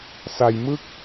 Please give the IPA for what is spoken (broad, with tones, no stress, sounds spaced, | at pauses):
s a˧ j m ɯ˦˥ k̚